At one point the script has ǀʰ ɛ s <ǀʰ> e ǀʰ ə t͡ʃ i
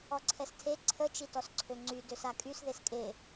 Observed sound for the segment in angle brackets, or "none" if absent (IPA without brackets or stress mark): tʰ